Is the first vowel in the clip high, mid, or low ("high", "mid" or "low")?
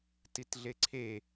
high